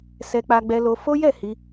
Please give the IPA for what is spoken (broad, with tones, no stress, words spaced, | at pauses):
sɛ˧k͡pa˧ɡ͡bɛ˧ lo˧fo˦ jɛ˦˨hi˧